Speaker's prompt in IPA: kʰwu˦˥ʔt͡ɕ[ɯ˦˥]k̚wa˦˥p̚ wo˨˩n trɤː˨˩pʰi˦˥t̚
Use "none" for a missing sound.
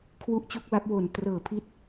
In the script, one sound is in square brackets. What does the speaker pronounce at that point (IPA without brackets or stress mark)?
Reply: u˦˥